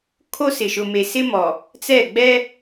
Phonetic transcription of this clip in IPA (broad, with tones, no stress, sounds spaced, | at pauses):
kʰ o˦ s ɪ˨ ʃ ʊ˨ m e˨ s ɪ˦ m ɔ˨ | t͡s ɛ˦˨ ɡ͡b ɛ˦